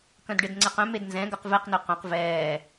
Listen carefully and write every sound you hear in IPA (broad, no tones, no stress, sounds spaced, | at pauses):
k œ̃ d ɖ e d ŋ͡ǀ ɛ q œ̃ m e d n z ɛ̃ ɡ œ q v ɛ q n ɵ q œ̃ q v ɛː